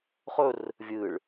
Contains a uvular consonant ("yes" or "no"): yes